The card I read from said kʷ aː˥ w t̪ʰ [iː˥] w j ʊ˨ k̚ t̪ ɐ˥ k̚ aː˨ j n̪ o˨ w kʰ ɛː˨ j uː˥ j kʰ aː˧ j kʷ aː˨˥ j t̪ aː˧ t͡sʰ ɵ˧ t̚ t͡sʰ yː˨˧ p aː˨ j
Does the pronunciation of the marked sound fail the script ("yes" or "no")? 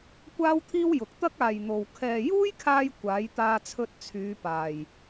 no